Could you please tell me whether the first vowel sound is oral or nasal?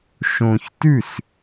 nasal